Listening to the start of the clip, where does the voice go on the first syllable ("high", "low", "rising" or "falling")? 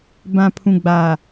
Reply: low